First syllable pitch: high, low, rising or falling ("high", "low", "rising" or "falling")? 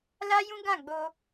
high